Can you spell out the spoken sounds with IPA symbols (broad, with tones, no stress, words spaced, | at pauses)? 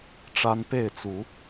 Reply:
ʈ͡ʂa˦n pe˥˨ɪ̯t͡su˨˦